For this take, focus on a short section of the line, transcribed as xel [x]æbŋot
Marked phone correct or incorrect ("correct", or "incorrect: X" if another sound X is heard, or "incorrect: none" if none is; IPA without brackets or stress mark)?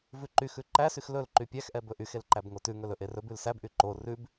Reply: incorrect: ǃ